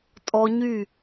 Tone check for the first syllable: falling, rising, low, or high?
high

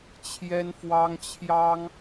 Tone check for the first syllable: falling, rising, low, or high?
high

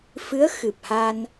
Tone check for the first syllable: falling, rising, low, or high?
rising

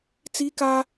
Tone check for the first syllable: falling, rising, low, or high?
high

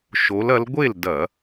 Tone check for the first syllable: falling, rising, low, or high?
rising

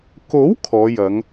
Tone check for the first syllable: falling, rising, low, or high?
rising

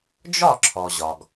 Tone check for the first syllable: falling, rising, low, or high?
falling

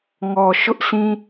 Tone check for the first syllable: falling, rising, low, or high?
low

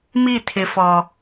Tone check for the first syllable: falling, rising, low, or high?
falling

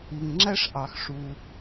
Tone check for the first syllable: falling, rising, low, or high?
low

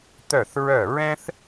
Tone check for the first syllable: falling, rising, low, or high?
falling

